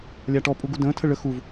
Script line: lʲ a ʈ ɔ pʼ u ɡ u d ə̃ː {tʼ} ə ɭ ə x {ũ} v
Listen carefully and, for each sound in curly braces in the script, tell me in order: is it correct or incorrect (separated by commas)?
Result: incorrect, incorrect